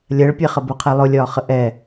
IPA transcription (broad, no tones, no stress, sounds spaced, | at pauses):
lʲ ɜ ɭ pʲ ɛ χ ə b ʊ qʰ ɛ lˠ ʊ lʲ ɒː χ ə ʔ ɛ